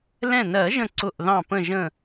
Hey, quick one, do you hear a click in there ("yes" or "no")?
yes